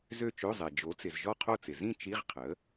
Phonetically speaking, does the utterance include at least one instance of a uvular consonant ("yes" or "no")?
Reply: yes